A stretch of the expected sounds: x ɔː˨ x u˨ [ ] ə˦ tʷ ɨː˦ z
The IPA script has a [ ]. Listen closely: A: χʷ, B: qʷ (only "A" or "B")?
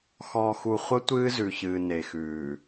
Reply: A